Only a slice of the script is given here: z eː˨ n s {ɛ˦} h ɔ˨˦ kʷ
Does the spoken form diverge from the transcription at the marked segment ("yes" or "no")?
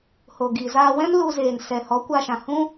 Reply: yes